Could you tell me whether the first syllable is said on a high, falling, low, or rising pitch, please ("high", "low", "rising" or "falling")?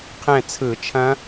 falling